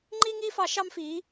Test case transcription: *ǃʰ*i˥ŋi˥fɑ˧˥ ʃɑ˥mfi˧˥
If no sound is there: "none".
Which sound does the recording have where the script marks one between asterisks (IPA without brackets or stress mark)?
ŋ͡ǃ